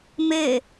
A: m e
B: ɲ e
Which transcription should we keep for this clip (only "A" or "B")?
A